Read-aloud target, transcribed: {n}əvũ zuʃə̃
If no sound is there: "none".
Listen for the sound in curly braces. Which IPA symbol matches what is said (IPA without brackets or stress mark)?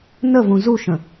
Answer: n